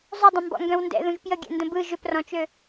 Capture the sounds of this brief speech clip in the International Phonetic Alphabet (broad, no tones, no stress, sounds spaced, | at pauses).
zˤ ʏ dˤ ə̃ m b ɔ̰ ŋ ɡ œ̃ w n d ɛ̰ ð ũ ʒ p j ə ɡʲ ɛ̰ n d ə̃ b ɯ ʒ ʏ p r ɔ̃ t͡ʃ ø